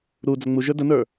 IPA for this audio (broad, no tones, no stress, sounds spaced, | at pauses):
ɾ u d͡z ə ŋ͡m u ʒ ə˞ d ə n ə˞